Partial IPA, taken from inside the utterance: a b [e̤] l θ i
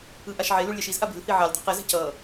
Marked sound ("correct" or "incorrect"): correct